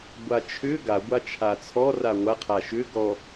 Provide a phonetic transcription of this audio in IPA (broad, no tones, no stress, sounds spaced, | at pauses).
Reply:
ɡʷ a t͡ʃʰ ʏ ɡ a ɡʷ a t͡ʃʰ a t͡sʰ ɔ r a ŋʷ a qʰ a ʃ ʏ ɡ ɔ